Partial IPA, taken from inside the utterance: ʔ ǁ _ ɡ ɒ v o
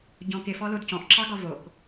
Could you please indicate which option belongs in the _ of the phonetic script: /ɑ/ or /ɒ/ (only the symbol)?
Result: ɑ